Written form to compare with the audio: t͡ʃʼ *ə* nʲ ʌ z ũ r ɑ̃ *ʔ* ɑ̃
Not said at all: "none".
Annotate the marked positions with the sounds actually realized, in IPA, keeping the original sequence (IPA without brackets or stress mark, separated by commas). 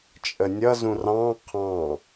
ə, qʰ